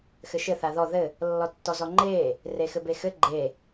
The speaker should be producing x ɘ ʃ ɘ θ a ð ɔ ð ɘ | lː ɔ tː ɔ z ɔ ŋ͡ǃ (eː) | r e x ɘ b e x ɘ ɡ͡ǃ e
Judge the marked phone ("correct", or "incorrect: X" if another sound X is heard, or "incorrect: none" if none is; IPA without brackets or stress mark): correct